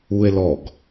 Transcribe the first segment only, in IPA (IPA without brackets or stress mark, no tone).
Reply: u